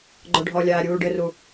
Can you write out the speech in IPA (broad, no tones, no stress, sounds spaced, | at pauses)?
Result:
ɡ͡ǃ ɔ ɖʱ ɔ lʲ aː ɾʲ uː ɖ ɘ r u